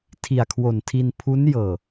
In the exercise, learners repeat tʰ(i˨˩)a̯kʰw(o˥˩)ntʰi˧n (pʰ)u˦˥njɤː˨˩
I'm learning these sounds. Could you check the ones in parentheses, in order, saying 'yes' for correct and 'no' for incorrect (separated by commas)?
yes, no, yes